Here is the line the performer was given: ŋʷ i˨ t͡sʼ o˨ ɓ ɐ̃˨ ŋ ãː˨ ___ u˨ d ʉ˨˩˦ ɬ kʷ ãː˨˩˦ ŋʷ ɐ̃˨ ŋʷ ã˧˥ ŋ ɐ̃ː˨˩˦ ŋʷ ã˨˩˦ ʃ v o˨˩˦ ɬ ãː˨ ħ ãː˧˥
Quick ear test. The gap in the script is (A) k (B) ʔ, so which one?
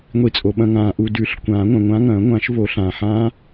B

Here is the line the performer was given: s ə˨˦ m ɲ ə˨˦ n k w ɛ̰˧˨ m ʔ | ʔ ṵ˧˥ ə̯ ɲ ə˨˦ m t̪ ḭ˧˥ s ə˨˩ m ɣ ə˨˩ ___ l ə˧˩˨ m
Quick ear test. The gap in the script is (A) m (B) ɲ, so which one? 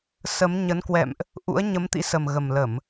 A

